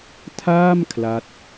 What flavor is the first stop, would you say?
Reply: aspirated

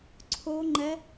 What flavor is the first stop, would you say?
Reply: click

